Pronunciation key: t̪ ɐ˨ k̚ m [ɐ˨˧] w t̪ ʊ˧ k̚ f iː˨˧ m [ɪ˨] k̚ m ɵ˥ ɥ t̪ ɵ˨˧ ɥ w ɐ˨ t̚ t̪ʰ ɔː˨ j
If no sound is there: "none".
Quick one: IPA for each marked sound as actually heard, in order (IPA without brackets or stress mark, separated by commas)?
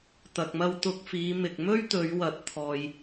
ɐ˧, ɪ˨